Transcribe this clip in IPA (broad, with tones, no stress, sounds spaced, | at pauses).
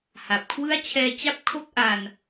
h a˨˩ p̚ kʰ w ɯ˥˩ a̯ t͡ɕʰ ɛː˧ t͡ɕ a˦˥ p̚ kʰ o˥˩ k̚ ʔ a˧ n